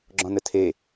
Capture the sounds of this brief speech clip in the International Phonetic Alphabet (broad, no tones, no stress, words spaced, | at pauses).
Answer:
ɡ͡ǁɔ̃nətʰe